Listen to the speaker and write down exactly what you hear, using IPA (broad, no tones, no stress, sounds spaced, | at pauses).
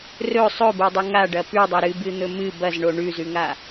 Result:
r ɵ sˤ ɵ b o dˤ ɨ ŋ a ɖ ɐ p ʉ dˤ ɐ ɾ ɨ b ɨ n̪ ɵ m ɨ b ɐ z ɳ o ɳ ʉ z ʉ ŋ a